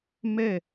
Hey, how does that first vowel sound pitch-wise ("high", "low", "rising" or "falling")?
falling